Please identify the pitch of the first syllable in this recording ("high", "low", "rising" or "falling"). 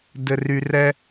low